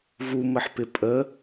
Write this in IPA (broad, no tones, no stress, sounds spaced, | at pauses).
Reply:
v u m ə ħ p ɪ pʼ ə